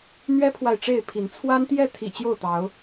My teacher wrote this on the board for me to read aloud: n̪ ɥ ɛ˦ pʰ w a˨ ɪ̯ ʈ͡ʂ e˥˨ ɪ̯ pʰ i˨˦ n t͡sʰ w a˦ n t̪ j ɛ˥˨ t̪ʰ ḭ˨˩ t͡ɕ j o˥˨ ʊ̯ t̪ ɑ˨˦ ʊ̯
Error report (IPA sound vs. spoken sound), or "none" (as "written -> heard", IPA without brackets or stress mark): none